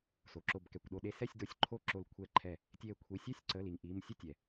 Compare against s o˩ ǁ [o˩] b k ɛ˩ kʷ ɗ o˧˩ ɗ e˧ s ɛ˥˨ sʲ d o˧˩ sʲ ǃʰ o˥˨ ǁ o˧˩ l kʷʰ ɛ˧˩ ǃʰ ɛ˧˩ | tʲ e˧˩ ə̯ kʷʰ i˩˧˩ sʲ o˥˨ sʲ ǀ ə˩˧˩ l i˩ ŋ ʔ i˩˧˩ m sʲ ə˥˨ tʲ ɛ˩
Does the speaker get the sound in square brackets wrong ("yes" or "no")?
yes